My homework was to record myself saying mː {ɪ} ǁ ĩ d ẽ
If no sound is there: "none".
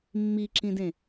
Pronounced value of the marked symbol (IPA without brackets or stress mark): i